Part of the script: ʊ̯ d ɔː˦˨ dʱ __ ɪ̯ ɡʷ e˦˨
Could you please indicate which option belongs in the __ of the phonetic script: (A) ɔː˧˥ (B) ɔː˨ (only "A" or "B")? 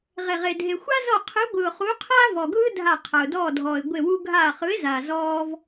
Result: B